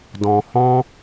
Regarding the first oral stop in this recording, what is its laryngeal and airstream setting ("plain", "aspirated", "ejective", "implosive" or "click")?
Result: plain